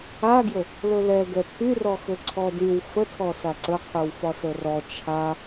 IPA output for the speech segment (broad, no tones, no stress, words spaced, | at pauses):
aɡjə | lɵlɛɡɛ pʰyrɔxɵ ǀʰɔdyw fətʰɔsa ǀəqʰyw fɒsərɔ t͡ʃʰa